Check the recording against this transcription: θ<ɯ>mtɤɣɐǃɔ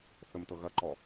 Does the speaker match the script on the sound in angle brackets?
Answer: no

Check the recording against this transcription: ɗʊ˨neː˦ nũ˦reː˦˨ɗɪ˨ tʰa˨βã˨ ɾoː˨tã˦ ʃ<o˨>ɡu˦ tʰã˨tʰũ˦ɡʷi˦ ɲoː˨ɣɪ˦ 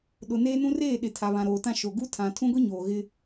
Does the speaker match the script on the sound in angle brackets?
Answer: yes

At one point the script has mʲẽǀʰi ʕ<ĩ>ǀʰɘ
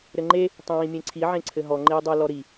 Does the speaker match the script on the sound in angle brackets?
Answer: no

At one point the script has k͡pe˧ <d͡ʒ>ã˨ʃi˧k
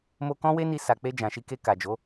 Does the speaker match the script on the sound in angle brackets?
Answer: yes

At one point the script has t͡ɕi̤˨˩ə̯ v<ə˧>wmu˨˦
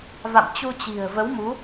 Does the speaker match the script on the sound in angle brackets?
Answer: no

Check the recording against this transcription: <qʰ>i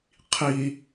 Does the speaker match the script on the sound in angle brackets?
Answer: yes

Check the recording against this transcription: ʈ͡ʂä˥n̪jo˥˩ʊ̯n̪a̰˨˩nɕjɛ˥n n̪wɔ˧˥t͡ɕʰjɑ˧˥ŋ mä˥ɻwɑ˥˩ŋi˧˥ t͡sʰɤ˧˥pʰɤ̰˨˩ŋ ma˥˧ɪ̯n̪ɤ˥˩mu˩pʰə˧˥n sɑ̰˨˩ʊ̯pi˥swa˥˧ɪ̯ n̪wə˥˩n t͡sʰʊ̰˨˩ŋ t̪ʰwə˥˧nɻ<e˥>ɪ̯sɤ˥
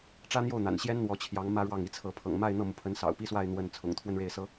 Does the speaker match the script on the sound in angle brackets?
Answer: no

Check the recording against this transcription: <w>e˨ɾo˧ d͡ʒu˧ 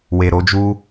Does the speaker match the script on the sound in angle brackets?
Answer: yes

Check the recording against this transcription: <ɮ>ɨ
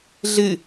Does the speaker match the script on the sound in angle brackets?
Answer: yes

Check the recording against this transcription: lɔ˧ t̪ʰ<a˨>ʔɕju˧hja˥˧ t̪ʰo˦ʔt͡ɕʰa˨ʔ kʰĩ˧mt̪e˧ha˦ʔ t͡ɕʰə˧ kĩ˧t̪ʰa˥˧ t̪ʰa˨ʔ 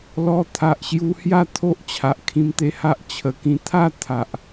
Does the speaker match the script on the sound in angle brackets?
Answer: yes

